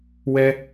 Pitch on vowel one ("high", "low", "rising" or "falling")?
high